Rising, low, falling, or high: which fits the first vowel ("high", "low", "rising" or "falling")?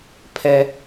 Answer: high